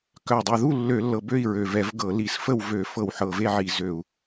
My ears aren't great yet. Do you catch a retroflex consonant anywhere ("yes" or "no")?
no